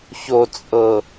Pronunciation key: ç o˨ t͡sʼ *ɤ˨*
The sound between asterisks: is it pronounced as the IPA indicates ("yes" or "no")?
yes